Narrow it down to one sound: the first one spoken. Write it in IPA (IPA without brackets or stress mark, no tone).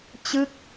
t͡ɕ